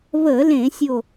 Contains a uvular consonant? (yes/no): no